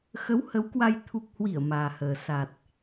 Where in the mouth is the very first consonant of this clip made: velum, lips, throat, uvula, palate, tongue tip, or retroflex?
velum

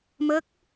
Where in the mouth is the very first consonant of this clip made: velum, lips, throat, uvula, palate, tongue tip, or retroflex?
lips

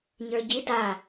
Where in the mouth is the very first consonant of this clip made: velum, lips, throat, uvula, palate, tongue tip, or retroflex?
palate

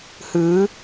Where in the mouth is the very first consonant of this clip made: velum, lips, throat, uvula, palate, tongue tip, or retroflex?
throat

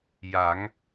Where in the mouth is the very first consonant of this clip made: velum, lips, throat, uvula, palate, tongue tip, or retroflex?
palate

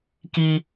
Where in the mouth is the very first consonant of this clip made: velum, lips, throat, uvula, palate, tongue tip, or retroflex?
velum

